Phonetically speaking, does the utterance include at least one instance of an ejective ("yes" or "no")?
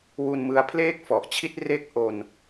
no